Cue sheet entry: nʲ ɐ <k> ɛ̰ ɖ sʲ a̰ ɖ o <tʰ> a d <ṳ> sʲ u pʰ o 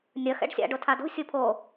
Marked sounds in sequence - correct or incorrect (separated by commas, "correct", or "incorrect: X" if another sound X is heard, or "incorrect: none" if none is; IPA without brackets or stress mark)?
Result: incorrect: x, correct, correct